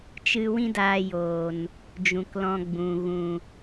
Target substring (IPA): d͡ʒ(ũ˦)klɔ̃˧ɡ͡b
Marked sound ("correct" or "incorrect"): incorrect